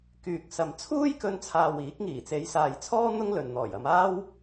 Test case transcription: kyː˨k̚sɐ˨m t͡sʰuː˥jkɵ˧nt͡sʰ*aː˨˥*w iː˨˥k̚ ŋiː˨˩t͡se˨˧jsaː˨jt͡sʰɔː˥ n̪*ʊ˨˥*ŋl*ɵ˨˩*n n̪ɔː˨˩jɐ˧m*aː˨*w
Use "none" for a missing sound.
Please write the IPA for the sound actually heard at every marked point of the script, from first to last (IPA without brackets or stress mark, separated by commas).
aː˨, ʊ˥, ɵ˨, aː˥